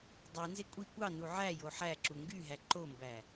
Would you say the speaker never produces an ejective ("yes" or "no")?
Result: no